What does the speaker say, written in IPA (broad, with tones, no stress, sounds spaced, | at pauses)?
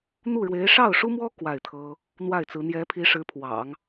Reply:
n̪ u˥˩ ɻ w e˧˥ ɪ̯ ʂ ɑ˥˩ ʊ̯ ʂ u˥ m w ɔ˥ k w a˥˩ ɪ̯ t̪ʰ ɤ˥ | n̪ w a˥˩ ɪ̯ t͡s ɹ̩˧˥ n̪ j ɛ˧˥ pʰ i˧˥ ʂ ɻ̩˧˥ pʰ w ɑ̰˨˩˦ ŋ